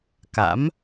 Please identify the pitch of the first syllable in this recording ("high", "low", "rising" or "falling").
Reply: rising